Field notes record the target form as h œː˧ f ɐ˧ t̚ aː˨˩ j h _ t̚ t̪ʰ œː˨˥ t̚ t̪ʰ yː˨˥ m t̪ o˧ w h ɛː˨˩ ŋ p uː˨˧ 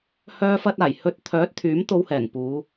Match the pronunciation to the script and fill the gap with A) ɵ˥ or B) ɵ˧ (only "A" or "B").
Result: B